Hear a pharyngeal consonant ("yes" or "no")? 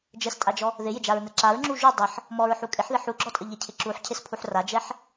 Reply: yes